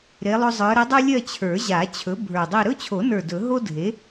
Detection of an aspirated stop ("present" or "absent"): present